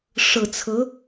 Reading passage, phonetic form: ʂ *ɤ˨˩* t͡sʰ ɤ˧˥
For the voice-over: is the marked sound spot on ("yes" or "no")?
yes